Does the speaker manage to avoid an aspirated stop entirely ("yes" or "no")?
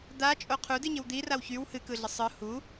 no